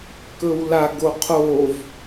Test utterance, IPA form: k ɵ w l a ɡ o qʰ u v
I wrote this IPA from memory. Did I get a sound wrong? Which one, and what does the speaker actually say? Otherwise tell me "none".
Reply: u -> o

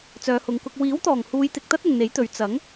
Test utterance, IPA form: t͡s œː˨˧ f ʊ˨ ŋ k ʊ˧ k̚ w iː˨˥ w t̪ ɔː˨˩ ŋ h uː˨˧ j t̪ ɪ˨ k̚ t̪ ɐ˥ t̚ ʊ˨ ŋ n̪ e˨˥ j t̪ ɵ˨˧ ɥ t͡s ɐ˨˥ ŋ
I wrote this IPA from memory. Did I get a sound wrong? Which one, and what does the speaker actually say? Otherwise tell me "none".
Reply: f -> h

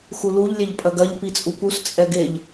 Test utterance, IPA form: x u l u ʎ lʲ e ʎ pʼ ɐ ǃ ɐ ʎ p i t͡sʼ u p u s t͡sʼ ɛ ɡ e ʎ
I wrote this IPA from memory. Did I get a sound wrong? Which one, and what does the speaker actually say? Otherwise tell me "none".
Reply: ǃ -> ɡ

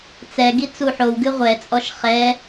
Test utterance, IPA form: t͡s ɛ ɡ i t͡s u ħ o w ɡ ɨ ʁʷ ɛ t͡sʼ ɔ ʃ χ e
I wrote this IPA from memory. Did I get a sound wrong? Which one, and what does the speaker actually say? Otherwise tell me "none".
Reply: e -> ɛ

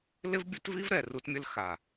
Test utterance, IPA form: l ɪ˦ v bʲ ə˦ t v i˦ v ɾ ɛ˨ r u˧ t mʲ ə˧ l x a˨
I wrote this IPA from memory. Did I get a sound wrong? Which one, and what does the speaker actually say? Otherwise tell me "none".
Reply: none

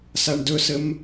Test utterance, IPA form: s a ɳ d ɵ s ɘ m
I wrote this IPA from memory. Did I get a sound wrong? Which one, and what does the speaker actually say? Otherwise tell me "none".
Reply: none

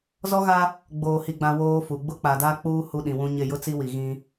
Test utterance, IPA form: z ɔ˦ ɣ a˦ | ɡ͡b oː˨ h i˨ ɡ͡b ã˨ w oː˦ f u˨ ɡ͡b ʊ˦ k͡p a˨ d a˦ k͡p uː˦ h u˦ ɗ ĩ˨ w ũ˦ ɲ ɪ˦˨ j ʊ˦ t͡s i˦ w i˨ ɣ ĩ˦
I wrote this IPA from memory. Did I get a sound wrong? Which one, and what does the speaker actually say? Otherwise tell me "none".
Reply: none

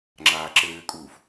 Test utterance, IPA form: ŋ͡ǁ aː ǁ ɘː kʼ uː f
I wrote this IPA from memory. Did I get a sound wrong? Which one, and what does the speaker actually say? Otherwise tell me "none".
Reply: none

